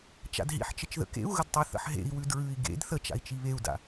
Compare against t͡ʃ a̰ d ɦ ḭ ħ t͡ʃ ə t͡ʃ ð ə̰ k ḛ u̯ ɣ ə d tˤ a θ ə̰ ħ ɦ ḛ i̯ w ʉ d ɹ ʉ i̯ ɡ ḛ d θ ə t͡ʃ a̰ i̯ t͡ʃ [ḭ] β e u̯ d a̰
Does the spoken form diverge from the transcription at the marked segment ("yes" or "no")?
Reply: yes